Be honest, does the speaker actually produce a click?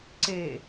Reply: yes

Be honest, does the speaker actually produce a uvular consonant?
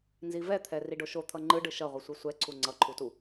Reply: yes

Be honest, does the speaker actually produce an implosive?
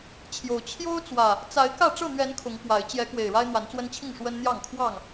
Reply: no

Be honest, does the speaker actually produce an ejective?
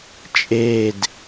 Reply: yes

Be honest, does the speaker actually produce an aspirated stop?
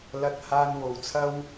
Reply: yes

